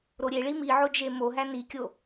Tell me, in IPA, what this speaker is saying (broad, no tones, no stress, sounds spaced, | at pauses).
ɾ o ɾʲ e ɭ i m i ʕ o d͡ʒ e m o ɦ æ n i kʲ o